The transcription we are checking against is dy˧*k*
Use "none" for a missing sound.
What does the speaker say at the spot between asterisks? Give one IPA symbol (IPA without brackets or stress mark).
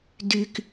k